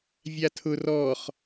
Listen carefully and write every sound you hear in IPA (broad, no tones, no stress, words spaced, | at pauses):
vʲatʰʊ rɔχ